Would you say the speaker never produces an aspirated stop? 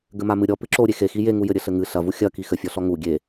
yes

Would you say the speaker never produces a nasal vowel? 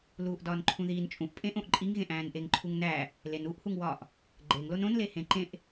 no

